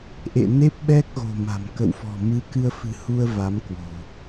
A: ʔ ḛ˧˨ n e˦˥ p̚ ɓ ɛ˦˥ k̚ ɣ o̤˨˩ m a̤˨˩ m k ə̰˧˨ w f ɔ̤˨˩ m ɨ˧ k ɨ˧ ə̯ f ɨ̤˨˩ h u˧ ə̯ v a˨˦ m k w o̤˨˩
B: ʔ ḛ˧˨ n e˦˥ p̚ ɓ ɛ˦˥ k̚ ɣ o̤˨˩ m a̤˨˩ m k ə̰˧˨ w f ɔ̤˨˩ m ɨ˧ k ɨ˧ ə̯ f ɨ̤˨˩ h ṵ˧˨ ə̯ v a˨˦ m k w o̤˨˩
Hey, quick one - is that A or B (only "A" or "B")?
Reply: A